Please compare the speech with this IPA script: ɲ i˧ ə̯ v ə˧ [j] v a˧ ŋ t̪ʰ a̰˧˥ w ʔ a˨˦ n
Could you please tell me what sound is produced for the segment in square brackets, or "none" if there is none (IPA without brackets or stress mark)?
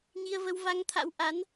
w